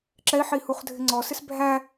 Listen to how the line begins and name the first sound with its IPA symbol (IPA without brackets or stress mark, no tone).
ǁ